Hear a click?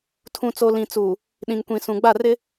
no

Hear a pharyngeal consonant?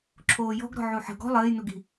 yes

